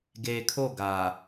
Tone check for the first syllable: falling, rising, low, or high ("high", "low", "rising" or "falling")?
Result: low